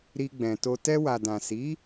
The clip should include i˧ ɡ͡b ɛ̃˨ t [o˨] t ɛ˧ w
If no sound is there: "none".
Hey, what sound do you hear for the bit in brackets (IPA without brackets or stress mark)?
o˧